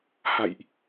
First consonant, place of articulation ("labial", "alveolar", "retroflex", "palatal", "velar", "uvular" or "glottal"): glottal